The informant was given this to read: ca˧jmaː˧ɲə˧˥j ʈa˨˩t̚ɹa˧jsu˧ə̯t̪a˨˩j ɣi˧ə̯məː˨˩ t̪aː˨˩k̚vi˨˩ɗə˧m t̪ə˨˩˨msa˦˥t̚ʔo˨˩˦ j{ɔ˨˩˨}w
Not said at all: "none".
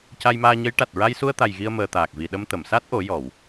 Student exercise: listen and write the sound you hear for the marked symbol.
ɔ˨˩˨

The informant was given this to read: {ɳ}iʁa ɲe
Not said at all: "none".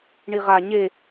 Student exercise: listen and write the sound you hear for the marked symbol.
ɳ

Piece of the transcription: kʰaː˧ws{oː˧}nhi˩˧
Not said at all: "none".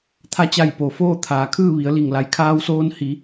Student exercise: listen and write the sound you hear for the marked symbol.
oː˧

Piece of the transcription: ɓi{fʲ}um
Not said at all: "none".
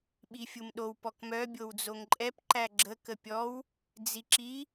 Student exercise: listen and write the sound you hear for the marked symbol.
fʲ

